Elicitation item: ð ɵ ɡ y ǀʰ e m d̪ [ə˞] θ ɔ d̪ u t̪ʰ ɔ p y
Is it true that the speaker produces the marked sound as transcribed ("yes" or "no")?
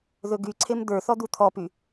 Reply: yes